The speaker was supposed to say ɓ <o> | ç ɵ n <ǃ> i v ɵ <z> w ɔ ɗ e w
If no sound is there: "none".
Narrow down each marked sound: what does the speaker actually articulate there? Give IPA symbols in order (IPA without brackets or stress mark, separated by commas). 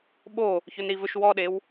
o, ɾ, ʃ